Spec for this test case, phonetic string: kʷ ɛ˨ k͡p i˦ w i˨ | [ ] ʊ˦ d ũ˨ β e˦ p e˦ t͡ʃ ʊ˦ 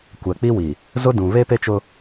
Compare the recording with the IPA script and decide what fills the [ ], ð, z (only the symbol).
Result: z